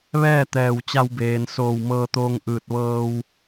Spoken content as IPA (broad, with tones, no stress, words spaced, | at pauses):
ʋɛː˥˨t̪ɛː˧˩w t͡ɕa˧wbeː˩n soː˧˩wmɤː˧t̪oː˧ŋʔɯː˧˩t̚ ʋɤː˧w